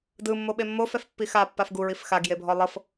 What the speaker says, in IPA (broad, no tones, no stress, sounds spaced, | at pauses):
d ɯ mː o ɓ e mː o f ɛ f pː i x a pː a f ɡ u ɹ i f x a ɡ j e bʱ ɔ lˠ ɤ f